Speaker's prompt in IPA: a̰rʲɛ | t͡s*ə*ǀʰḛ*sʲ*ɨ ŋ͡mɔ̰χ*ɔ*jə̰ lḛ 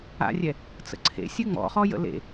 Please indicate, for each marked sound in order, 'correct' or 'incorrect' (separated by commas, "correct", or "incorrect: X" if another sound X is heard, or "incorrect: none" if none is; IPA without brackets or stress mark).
incorrect: ə̰, correct, correct